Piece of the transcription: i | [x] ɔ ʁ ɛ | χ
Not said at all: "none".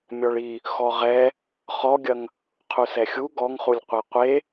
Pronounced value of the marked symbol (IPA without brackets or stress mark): x